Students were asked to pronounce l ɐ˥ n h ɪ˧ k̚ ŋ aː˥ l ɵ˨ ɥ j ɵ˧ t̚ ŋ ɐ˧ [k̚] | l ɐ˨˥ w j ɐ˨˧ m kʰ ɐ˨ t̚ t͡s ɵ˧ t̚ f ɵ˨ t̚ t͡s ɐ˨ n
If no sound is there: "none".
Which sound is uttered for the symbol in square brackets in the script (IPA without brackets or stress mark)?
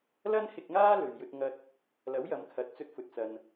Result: t̚